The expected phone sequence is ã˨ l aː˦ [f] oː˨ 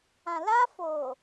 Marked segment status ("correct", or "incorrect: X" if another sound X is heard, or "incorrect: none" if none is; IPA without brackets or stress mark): correct